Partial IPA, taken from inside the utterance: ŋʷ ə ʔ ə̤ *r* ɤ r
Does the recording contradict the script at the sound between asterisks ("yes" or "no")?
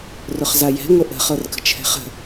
yes